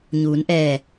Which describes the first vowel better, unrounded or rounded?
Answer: rounded